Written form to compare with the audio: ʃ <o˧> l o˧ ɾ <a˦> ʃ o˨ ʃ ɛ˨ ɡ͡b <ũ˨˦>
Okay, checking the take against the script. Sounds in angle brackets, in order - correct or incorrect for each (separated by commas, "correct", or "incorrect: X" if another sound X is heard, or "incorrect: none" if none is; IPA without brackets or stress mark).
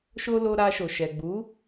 correct, incorrect: a˧, incorrect: u˨˦